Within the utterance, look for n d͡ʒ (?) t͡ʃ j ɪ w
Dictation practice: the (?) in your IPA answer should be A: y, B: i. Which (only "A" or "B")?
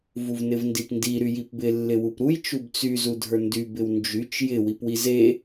A